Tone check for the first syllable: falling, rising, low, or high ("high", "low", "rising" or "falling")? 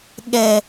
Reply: low